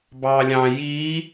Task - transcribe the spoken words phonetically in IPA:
b ɑː lʲ ɑ̃ j iː

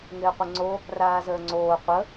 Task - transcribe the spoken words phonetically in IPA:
ŋ ɪː qʷ ɪ ŋ͡ǀ o | r aː z əː ŋ͡ǀ oː qʷ ə

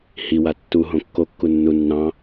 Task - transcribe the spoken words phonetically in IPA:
h i w a tː u ɦ õ kː o kː u nː u nː ɑ̃

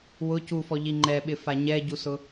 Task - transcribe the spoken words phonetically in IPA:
w ʊ c u f ɔ ʎ i ŋ͡ǃ ɛ ɓ ɪ f a ɲ ɛ ɟ u s ʊ

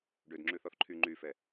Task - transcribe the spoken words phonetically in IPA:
ɖ ø d ŋ͡ǁ ʉ θ ɔ θ ǃʰ y ŋ͡ǃ y f ɛ

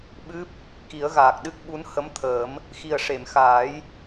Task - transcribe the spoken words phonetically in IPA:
ɓ ɨ˦˥ p̚ | k i˨˩˦ ə̯ ɣ aː˨˩ k̚ ɗ ɨ˦˥ k̚ ɓ u˧˥ n h ə˧˥ m t̪ʰ əː˨˩˦ m | x i˨˩ ə̯ ʂ e˨˩˨ m x aː˨˩˦ j

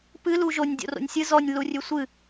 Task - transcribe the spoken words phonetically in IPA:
p ɨ l u ʒ o nʲ dʲ o̰ r o̰ nʲ sʲ ɨ z ɔ nʲ l u rʲ ʉ sʷ ɨ

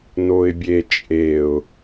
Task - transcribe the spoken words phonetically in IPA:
n o ɪ̯ bʲ e t͡ʃʼ e ʊ̯

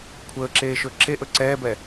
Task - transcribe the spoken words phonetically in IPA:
kʷʰ əː ǁ eː ʃ ɵ ǁ e ʔ ɵ ǀ ɛː b ɛ

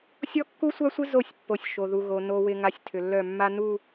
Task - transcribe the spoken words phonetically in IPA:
sʲ ɔ˦ kː u˦ sʷ a˦ sʷ ɪ˦ z o˦˨ sʲ pː o˨ sʲ ʃ o˨ ð u˨ ɣ o˨ n o˨ w ɪ˨ ŋ a˦ sʲ tʰ ʏ˨ lː œ˦˨ mː a˦ n u˦˨

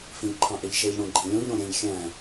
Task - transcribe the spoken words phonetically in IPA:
f ĩ ʎ ǃʰ ɑ̃ ʔ e ʎ ʃ e ʎ ɽ õ ɡ͡ǃ ẽ lʲ õ ʎ ɾ õ ɾʲ ẽ ʎ xʲ æ̃

